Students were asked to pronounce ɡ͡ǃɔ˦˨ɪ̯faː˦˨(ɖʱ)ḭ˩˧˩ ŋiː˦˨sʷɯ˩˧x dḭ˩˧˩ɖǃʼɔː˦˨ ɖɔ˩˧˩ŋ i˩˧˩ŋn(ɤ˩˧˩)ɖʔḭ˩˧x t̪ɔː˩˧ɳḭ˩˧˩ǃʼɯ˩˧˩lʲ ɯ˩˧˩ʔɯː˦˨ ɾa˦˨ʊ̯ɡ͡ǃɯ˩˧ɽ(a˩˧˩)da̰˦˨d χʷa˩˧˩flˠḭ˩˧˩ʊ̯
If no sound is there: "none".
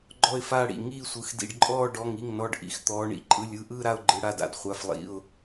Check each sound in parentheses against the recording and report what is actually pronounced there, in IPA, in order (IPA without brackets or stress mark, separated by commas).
ɽ, ɔ˩˧˩, a˩˧˩